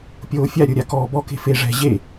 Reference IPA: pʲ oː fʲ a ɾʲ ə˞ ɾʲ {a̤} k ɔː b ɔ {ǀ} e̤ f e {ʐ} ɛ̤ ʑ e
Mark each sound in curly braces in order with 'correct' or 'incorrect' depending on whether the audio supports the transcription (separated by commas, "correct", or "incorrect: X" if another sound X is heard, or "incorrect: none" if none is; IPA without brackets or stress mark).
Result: incorrect: a, incorrect: k, correct